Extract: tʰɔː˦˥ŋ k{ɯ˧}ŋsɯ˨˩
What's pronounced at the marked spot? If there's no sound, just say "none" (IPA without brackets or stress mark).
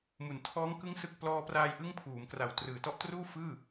ɯ˦˥